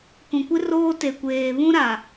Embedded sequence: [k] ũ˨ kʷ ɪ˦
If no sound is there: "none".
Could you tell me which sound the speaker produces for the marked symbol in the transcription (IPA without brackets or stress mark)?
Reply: k